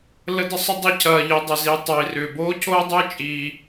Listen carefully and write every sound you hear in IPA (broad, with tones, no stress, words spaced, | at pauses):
lə˥ də˥sˤʏ˥ dˤi˥cʰɐː˧ʎi˧ dˤʏ˧zi˧ tˤəː˧i̯rʏː˧ boː˥cʰoː˥dˤʏː˥ t͡ʃʼiː˧